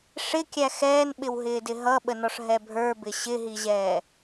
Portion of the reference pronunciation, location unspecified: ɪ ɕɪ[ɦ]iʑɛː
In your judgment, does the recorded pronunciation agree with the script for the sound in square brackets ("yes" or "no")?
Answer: yes